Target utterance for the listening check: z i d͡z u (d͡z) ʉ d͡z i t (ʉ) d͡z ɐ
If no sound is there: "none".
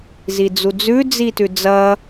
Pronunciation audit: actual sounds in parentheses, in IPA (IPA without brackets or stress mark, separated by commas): d͡z, ʉ